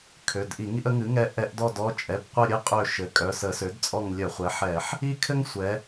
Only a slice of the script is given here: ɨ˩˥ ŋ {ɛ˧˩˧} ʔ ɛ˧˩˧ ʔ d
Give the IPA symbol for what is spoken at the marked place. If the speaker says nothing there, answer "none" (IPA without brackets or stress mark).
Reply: ɛ˦˨